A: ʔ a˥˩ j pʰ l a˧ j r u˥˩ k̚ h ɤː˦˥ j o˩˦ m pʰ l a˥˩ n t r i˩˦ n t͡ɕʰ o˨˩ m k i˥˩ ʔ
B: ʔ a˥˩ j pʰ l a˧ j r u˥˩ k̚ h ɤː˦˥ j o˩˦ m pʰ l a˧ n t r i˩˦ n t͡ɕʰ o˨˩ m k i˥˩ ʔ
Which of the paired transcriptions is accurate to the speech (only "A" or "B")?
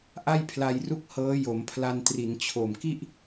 B